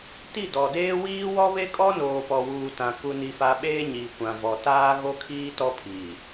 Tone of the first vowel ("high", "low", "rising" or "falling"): falling